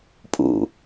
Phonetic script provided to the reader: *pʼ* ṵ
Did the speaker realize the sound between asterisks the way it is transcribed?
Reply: yes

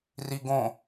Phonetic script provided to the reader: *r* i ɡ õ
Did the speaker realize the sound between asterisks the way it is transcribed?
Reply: yes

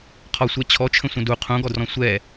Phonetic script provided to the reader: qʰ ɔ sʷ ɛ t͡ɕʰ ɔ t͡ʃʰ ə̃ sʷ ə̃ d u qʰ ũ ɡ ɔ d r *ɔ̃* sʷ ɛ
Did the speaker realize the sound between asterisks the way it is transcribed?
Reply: yes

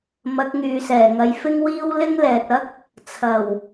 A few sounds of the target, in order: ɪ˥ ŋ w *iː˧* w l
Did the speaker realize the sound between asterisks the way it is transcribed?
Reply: no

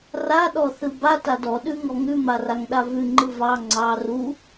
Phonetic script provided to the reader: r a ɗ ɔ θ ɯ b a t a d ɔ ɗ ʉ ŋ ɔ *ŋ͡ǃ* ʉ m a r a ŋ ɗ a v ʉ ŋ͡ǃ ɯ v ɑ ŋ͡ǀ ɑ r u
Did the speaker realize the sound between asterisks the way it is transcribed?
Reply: no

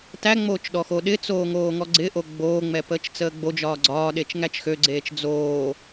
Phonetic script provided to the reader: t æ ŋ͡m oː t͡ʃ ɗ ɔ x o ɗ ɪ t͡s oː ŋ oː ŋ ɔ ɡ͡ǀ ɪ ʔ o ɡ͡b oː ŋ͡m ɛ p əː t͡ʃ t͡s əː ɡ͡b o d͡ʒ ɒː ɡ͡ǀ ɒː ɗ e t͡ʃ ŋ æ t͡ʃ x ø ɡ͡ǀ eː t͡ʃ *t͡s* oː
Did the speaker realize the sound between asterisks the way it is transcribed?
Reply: no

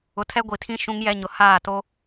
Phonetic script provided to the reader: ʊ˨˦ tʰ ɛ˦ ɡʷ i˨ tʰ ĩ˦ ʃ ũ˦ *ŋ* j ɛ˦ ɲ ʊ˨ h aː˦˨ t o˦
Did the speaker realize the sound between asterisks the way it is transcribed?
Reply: yes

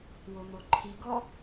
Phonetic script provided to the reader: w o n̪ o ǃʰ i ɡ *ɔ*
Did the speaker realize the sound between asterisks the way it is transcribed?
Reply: yes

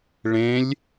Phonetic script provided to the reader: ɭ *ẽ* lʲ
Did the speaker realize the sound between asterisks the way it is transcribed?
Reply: yes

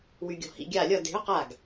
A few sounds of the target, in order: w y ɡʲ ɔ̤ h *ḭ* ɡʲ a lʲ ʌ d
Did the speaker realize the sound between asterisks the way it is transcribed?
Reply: yes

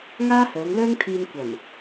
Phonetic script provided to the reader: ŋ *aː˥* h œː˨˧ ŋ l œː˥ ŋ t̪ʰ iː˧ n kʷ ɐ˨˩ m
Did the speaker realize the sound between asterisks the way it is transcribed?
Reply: yes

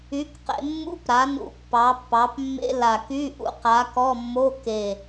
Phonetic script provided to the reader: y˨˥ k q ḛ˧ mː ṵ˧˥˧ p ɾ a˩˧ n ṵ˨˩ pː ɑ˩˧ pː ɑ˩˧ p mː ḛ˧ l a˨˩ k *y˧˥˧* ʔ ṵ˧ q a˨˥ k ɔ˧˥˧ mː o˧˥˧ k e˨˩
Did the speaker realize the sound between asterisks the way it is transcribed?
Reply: yes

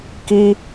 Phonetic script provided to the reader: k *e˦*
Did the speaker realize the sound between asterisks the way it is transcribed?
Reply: no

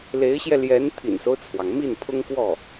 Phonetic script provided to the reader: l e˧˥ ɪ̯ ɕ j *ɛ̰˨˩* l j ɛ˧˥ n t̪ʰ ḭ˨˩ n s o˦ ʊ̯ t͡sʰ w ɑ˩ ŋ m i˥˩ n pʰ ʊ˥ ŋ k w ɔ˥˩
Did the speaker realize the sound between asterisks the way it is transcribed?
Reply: no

